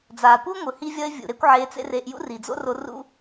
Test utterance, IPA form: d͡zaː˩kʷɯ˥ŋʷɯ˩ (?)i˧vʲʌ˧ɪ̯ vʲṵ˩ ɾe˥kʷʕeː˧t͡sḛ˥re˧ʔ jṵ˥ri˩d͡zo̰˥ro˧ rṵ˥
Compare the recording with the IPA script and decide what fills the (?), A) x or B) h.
B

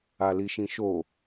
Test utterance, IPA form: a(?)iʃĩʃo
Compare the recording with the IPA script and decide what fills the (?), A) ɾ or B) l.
B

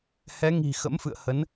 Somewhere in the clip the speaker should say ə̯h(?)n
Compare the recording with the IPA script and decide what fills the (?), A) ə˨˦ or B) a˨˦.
A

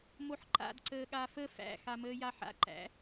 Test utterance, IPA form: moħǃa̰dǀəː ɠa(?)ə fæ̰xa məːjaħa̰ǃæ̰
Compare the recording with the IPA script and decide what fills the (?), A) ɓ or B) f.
B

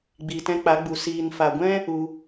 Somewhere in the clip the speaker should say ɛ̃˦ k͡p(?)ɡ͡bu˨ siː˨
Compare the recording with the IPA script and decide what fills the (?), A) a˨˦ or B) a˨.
A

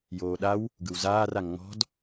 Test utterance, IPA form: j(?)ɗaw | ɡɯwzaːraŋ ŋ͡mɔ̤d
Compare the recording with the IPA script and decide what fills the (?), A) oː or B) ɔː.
A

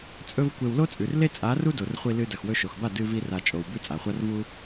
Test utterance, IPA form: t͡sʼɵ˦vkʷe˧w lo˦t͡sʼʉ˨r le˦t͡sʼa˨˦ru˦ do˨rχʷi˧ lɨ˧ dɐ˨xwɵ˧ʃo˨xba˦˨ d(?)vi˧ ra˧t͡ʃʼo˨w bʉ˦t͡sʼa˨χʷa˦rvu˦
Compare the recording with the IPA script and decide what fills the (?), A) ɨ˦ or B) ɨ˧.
B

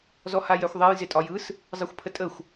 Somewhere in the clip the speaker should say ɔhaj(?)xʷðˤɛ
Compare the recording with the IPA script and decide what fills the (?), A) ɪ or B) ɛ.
B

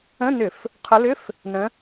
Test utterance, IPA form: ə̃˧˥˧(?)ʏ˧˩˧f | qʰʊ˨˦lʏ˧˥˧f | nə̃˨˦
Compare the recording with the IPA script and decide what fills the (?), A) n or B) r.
A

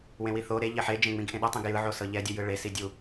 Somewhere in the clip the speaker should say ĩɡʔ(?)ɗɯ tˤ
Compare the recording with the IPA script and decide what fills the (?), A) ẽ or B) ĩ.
A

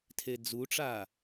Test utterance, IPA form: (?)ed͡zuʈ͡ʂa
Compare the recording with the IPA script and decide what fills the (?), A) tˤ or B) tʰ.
B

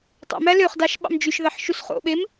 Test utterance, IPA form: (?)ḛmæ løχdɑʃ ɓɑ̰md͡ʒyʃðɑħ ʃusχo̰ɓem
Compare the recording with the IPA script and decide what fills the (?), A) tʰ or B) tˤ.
B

